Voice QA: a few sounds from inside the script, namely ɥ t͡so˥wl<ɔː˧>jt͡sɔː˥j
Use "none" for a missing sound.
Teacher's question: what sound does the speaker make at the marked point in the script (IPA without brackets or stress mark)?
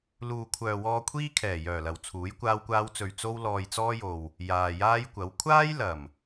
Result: ɔː˧